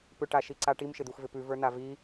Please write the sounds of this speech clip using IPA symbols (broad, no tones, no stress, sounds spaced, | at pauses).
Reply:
p ʏ ʈ a ʃ i ǀ a ʈ i m ʃ ɪ d̪ u x v ɪ p ʉ v ə˞ n a v i